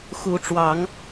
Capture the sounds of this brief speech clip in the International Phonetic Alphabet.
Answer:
xu˨˦ʈ͡ʂwɑ˨˦ŋ

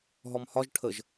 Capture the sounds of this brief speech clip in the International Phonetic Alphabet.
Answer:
ɦɔmhɒʒ ʈʰəʒ

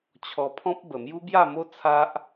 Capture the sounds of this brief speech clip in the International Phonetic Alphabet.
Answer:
t͡ɕʰɔ˧pʰɔ̃˦p̚ bə˨˩mju˦bja˥˧mo˦ t͡sʰa˦ʔ

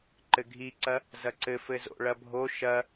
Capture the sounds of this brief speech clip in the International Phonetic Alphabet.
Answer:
ǃɘɡʱiǀɐ | zɐǀɘfɘ zo̰ɭɐbʱo ʃɐ

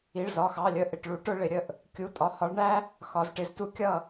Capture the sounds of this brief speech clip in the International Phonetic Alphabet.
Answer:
i˩˧˩ɭzɒ˩˧˩xɑ˩˧˩lʲə˧˥ ʔɪ˩˧˩ʈɭu˧˥ʈʊ˥ ɭɪ˩˧ɾʲə˥˩ʔ | kʲu˩˧˩tʼɒ˩˧˩ hɒ˧˥ɭ ɳæ˥ | xɒ˩˧zʈɪ˩˧ztu˥ kʲʌ˥˩

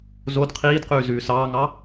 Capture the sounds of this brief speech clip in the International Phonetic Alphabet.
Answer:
zod qʰiːdqʉː zʉːsɑːŋɑ

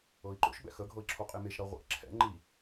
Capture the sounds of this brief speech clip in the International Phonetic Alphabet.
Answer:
ɤi̯ǃo̰ʃ bɛ̰xə ɡʱɤi̯ǁʰoqʼemeʃ ɾʌʁʷɛ̰ ǁʰɛ̰ ŋ͡ǃi

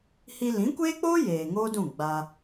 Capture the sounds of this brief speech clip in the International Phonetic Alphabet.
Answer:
hi˧lĩ˨˦kʷeː˦k͡poː˦ jeː˨ŋoː˦dũ˦˨ ɡ͡ba˧

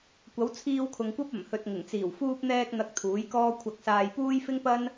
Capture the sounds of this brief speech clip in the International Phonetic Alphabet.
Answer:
kʷɐ˨˥wt͡sʰiː˧wkʰʊ˨ŋkʷɐ˥p̚ ɐ˨˩mhɵ˨t̚ŋɪ˨˩ŋt͡siː˨˩w fuː˧p̚n̪ɛː˧k̚ n̪ɐ˧k̚t̪ʰuː˨˥jkɔː˥ kʷʰɐ˧k̚saː˧j puː˥j fɪ˥ŋpɐ˥n

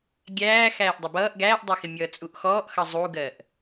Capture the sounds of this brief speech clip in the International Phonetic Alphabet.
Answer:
ɡʲæː xæːʔdˤʌbʌːʔ ɡæːʔdˤʌxɪ mʲʌːt͡sʼuʔxɔːʔ xʌzˤuɡɜʔ

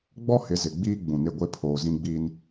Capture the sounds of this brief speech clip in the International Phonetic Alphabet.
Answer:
ɡ͡bɔ˦hɪ˨˦zɪ˨ɡ͡biː˦ ɡ͡bũ˨nɪ˦˨ ɡʷe˦pʰoː˨zĩ˦ɡ͡biː˦n

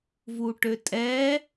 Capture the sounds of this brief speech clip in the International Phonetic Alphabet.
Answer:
vuʈøtʼɛ

